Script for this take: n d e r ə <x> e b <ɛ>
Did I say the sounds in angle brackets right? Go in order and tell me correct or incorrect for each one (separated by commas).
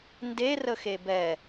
correct, correct